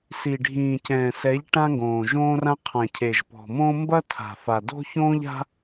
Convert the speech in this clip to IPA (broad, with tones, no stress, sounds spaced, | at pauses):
s i˨ ɖʱ ĩː˨ c ɛ̃ː˨ s ɛ˨˦ ʎ ʈ ã˦ ŋ ɡ õː˨ ʒ õː˦ r ã˦ qʰ ã˨ cʰ e˨ ʒ p ɔ̤˨ m õː˦ m b ɐ˦ tʰ a̤˨ f a˨ d o̤˦ ç õː˦ ʎ a̤˦